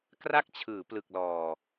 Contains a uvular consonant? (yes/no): no